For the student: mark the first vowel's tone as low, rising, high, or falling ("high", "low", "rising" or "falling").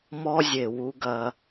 high